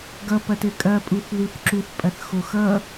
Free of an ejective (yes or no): no